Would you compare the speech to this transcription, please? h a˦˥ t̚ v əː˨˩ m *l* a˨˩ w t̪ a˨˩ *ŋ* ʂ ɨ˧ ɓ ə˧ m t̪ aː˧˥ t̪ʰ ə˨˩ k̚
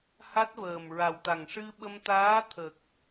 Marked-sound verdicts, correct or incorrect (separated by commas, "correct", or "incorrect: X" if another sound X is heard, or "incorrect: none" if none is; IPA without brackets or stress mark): incorrect: ɹ, correct